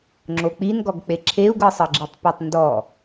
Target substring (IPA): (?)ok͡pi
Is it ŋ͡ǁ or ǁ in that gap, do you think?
ŋ͡ǁ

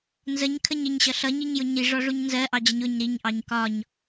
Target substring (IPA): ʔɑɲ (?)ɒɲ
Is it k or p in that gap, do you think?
k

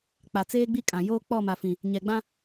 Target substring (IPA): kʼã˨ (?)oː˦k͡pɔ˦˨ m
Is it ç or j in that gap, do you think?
j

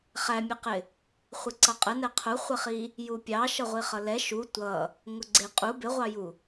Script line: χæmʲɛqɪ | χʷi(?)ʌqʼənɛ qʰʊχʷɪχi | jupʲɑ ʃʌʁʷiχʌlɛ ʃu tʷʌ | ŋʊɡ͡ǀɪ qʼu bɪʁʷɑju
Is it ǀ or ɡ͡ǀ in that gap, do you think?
ǀ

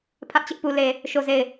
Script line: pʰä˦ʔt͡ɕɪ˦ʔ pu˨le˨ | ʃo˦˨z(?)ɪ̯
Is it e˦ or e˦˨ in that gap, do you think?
e˦˨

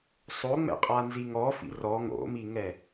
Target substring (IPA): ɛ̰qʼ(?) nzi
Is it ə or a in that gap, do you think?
a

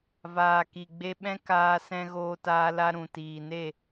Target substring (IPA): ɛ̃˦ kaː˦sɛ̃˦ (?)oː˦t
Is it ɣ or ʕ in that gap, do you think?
ɣ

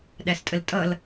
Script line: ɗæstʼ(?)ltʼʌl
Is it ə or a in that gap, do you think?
ə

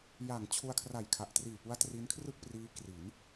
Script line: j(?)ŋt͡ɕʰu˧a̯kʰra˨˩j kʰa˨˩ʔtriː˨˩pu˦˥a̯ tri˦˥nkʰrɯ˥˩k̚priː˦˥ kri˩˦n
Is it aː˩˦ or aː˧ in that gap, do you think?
aː˩˦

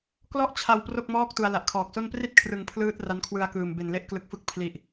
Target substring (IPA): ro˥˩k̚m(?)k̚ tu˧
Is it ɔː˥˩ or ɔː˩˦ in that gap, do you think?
ɔː˥˩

